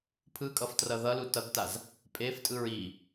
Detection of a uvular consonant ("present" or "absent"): absent